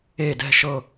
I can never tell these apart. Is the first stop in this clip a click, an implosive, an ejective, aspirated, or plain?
plain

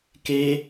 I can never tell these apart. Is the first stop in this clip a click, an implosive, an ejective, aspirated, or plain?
plain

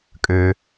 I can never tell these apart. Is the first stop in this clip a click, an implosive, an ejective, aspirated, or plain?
ejective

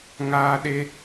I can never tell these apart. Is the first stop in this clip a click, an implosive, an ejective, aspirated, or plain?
implosive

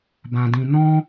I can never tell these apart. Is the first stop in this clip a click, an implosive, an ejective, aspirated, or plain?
plain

